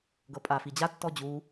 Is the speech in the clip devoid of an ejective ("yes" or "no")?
no